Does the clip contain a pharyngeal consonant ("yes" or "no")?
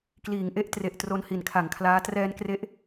no